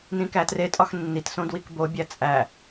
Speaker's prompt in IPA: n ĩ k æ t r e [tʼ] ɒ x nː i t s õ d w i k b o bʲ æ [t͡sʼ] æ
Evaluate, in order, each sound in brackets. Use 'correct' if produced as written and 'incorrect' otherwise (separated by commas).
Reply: correct, correct